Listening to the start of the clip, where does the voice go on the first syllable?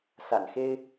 low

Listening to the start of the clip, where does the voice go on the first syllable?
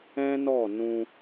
high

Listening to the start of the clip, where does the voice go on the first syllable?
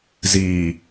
low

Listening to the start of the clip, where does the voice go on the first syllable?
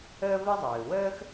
high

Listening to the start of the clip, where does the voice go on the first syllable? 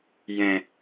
low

